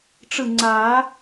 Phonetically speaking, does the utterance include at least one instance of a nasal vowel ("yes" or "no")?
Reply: no